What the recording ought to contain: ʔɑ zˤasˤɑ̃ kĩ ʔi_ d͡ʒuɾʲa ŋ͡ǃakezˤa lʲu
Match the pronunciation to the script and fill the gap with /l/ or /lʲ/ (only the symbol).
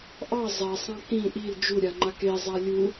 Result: l